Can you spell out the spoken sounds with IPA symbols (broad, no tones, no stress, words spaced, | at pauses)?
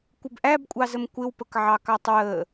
kʷɪbʔæbkʷʼɑzəm kʷɪwpəkʕɑkɑtˤ wə